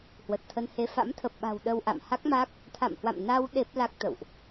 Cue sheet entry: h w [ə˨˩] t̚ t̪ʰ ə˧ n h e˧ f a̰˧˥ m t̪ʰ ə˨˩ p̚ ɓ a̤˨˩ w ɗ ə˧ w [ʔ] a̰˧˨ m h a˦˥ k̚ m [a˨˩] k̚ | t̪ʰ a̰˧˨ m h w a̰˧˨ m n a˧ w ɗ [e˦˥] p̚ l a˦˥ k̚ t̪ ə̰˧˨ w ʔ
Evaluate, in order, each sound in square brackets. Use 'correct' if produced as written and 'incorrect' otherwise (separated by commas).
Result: correct, correct, incorrect, correct